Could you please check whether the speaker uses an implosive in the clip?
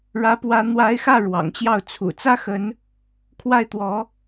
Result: no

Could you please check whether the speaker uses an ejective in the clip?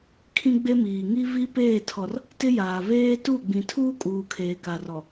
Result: yes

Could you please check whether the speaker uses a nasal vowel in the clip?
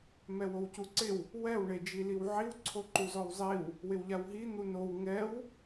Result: no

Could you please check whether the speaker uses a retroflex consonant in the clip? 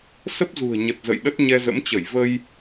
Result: no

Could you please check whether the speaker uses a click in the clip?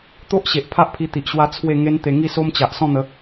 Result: no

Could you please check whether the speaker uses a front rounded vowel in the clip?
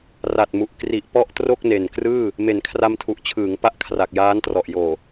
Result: no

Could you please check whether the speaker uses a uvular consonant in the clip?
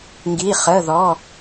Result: yes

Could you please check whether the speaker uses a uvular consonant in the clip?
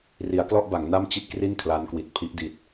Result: no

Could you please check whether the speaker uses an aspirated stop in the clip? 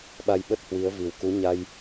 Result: no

